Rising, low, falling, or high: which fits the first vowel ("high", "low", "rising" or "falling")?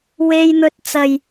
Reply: high